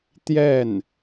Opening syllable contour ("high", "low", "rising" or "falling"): falling